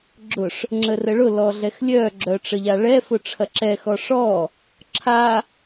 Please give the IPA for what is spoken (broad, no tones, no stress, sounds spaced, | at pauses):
ɡ͡ǁ ʊ ʂ | ŋ͡ǁ ə r ə ɭ ʊ l ɔ ɮ ɛ x lʲ œ ɡ͡ǁ œ ʈ͡ʂ ə ʎ a ɭ ɛ f ʊ ʈ͡ʂʰ ɐ ǁ ɛ x ɔ ʂ ɔ | ǁʰ a